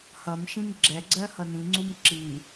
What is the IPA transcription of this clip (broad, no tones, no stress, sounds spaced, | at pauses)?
h ʌ m ʃ ĩ m ɡ͡ǁ ɛ ɡ͡ǀ ɜ h ʌ n ĩ ŋ͡ǀ u m ǁ i